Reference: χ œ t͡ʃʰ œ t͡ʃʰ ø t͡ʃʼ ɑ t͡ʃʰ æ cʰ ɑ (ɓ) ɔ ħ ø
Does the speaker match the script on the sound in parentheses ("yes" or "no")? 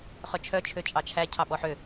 yes